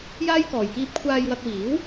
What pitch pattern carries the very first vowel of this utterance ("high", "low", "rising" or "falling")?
high